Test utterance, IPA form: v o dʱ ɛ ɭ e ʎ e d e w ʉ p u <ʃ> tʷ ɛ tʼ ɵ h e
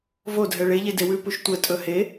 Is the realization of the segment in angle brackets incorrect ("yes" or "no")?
no